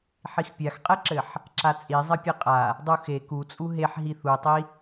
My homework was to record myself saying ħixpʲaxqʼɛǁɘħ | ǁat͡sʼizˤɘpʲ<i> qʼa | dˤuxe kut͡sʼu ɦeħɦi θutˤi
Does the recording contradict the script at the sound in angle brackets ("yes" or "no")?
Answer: yes